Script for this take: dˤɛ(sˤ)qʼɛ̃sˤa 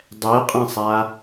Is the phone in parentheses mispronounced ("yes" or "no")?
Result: yes